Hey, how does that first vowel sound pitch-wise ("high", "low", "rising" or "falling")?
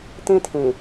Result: high